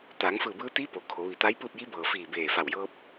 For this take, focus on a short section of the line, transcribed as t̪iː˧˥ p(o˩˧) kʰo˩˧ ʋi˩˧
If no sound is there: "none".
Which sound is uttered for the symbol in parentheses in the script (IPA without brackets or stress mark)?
o˩˧